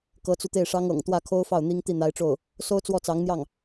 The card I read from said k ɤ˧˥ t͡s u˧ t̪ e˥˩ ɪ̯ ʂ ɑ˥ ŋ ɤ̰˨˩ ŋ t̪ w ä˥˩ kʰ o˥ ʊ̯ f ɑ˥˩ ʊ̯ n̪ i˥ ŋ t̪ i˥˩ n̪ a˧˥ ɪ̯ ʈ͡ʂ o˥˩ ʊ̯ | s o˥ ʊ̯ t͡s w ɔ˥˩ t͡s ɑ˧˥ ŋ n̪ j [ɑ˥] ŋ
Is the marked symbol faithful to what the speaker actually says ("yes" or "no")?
no